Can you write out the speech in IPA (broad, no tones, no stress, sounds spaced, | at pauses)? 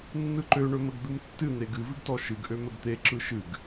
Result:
nː ɯ ǃ ø ɳ ɵ m ə ɡ d̪ u m tː ɨ n̪ e ɡ ɨ v ɨ ɡ t ɔ ʃ ɨ ɡ ʔ ø m ə ɡ t̪ e ǁ ɯ ʃ ɨ ɡ